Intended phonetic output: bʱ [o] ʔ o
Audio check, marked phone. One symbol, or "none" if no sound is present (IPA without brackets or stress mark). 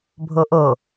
o